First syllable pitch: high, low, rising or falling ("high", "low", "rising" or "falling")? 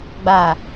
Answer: low